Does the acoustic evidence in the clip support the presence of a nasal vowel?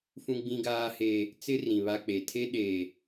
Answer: yes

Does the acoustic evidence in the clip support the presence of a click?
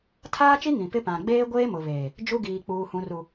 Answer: no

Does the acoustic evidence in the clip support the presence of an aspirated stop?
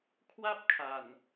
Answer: yes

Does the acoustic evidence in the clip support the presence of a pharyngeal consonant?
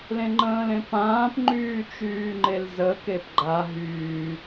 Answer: no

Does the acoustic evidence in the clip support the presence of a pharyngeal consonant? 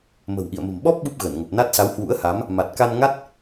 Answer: no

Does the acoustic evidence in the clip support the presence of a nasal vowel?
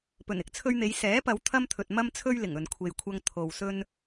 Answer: no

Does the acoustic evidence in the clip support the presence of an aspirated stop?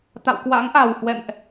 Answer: no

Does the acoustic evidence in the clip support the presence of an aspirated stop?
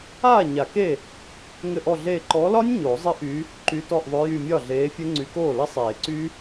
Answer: no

